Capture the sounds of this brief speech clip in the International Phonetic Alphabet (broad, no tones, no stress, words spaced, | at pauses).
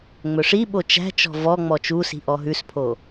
ŋ͡mɵʂiɓo t͡ʃæ̤t͡ʃɔ̤ vɔ ŋ͡mɔt͡ʃusi̤ ʔɔɦʉspʰo